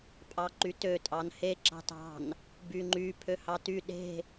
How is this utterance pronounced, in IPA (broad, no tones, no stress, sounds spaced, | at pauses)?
pʼ ɑ ǃ y t ø tʼ ɑ n h e ǁ ɑ̤ t ɑ̤ n | b y ŋ͡ǃ y pʰ ø h ɑ t y ɗ e̤